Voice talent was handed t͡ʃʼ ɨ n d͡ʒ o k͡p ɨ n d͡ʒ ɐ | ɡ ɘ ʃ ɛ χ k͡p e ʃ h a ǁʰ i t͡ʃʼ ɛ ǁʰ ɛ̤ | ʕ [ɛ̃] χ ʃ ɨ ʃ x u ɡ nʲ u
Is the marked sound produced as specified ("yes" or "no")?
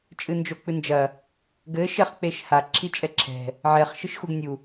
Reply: no